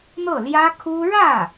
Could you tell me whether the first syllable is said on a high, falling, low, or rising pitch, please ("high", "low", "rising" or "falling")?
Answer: falling